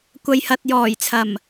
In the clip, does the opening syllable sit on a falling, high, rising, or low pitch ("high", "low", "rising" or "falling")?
low